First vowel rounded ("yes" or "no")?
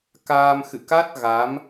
no